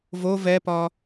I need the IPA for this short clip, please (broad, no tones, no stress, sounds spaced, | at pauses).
v o v ɛ p ɒ